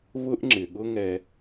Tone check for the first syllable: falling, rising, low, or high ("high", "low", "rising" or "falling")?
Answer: high